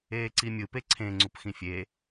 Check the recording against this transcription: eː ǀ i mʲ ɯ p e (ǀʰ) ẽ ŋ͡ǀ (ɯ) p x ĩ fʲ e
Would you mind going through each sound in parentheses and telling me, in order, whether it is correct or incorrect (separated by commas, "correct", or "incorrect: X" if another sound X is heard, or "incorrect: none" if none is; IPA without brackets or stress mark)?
correct, incorrect: u